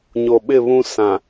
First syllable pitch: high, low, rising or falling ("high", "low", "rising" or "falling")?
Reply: low